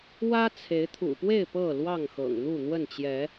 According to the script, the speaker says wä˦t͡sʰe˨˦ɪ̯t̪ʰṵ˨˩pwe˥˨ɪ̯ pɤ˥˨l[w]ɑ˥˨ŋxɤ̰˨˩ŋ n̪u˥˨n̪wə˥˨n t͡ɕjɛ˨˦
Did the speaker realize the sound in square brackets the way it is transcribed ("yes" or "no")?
yes